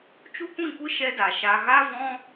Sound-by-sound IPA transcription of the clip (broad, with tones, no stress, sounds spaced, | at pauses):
t͡ʃ u˦ kʷ ĩ˦˨ kʷ ɨ˦ ʃ ɛ˦ d a˨ ʃ a˧ ɣ a˦ v ɔ̃˦